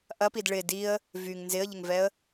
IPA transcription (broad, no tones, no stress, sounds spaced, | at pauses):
ʔ ɐ p i d ɭ ɪ d i ə̯ | v y ŋ n z ɪ ə̯ ʎ ɪ ŋ v ɛ ə̯